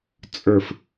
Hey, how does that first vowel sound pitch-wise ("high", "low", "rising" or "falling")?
low